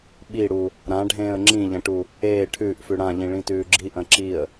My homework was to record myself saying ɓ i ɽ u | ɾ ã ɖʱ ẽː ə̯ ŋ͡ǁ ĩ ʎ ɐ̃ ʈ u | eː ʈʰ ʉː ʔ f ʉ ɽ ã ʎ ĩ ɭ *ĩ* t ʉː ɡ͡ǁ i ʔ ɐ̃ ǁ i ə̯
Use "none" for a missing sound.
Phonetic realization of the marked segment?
ĩ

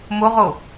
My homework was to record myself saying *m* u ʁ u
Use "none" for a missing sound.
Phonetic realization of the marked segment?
m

